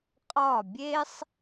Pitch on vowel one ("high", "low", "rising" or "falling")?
falling